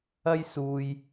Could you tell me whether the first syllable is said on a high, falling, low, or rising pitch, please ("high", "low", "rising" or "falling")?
high